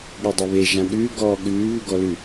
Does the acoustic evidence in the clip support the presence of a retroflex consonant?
no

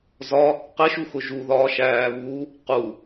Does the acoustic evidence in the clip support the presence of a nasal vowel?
no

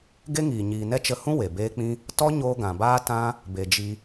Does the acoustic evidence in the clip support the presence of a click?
no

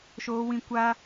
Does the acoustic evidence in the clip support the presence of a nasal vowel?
yes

